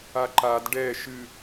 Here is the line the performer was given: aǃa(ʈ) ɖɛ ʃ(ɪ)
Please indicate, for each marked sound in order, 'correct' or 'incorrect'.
incorrect: d, incorrect: ɨ

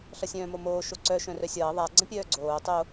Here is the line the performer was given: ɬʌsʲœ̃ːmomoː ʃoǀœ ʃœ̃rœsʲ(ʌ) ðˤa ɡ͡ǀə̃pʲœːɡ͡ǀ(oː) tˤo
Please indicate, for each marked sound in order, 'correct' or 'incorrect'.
incorrect: ʌː, correct

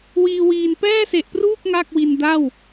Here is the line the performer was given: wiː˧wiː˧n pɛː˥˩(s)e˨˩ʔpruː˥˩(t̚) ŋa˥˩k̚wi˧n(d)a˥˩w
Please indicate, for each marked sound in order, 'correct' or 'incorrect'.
correct, incorrect: k̚, correct

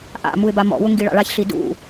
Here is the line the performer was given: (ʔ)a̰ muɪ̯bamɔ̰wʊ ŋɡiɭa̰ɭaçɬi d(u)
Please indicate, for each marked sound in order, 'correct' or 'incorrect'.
correct, incorrect: ṵ

